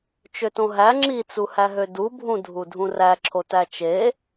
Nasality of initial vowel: oral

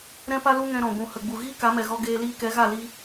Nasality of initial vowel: nasal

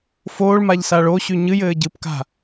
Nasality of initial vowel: oral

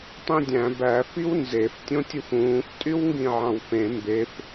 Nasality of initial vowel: nasal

